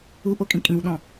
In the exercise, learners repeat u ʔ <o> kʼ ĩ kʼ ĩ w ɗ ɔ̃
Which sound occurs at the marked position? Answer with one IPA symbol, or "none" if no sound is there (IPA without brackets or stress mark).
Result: o